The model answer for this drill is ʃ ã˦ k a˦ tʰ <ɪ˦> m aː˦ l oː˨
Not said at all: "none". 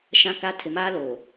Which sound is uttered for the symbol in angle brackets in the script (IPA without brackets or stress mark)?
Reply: ɪ˨